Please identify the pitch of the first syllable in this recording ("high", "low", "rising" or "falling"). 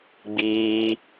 high